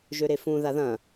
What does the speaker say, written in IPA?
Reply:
ʒ ø ɾ e f ũ ð a ð ɐ̃

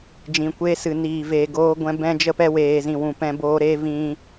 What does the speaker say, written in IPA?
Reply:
d͡ʒ ĩ˨ kʷ eː˧ s ɨ˨ n iː˨ v eː˨ ɡ oː˧ ɡʷ ɛ̃˧ b ɛ̃˧ d͡ʒ ə˧ p ɛ˧ w eː˨ z ĩ˨ w ũ˨ p ɛ̃˧ b oː˧ ɾ eː˦ v ĩ˧

